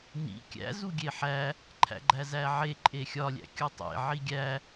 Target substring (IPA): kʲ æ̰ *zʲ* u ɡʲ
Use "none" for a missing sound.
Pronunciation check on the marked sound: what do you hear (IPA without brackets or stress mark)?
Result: z